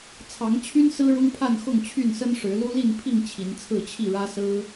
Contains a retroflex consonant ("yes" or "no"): yes